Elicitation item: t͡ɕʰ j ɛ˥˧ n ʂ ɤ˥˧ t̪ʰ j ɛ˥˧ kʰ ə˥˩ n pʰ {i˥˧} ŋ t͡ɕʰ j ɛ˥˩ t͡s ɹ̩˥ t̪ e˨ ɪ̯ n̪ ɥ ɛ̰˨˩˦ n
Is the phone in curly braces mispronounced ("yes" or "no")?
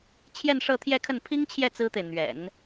yes